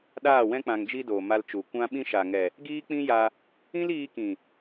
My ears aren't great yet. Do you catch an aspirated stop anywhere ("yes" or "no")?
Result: no